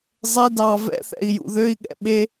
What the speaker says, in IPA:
zˤɛ dɑ vɛ̰θɛ̰i̯jṵ ðøi̯ɠɛ̰ ɓe

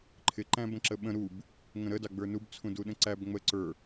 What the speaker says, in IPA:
ǃʰɪ ǃæ̃bə̃ǁəɓə̃ ɾub | ŋə̃ɾədɑ ɡ͡bə˞nub t͡sʰũduɗə̃ǀæb ŋ͡mə ǀə˞

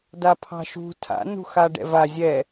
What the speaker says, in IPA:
dapʰɑ̤ʃṳ tʰa̰ nṳxaɖɛ̰va zʲɛ

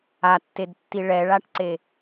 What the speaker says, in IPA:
atːedtːi ɭɛɭaʈǀe

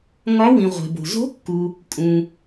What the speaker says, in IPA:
ŋɒ˧˥wĩ˨ ʁʷe̤˨bo̤˨ zo̤˧˥kːu˨ | kʼũ˨

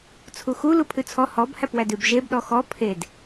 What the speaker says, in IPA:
t͡sʰuxu lupʰʉt͡sʰɔ hɔb hæpwædʉb ʒebɗɔ xɔ pʰed

